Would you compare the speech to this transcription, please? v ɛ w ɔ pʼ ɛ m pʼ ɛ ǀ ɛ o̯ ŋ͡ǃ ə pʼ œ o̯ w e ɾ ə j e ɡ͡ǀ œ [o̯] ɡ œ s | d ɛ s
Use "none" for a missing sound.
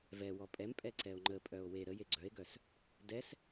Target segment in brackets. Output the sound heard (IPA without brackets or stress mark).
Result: e̯